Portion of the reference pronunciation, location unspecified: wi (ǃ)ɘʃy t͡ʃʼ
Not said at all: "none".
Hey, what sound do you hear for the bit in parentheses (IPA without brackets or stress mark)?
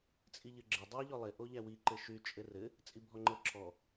ǃ